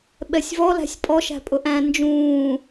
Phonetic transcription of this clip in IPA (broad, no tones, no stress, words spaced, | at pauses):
ɓɛsʲvɔ læ̤sʲpʼɔ ʃæ̤pʼʊʔæ̃ nd͡ʒũː